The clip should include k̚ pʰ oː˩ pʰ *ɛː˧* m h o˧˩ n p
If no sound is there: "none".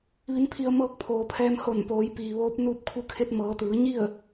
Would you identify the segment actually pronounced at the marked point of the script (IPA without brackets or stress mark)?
ɛː˧